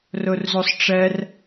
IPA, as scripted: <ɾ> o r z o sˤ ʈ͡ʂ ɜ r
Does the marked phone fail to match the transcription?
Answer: yes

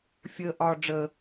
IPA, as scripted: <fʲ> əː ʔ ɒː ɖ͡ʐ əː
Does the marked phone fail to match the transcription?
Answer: no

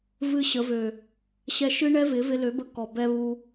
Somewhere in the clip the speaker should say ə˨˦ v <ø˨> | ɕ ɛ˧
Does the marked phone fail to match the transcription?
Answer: no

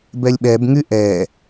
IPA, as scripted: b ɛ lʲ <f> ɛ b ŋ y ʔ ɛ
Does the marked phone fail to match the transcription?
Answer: yes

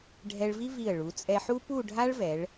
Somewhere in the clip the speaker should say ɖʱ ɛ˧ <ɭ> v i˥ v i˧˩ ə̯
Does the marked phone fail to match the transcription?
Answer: no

